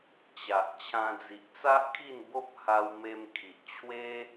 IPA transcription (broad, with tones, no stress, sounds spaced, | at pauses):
t͡ɕ a˨ ʔ t͡ɕʰ ã˧ d͡z i˨ ʔ t͡s a˦ ʔ kʰ i˥˧ n b o˦ p̚ h a˧ w m e˧ m kʰ i˨ ʔ t͡ɕʰ w e˦